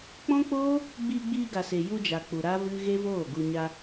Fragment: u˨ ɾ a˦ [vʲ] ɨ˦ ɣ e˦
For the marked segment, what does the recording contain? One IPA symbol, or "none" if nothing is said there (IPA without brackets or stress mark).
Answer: v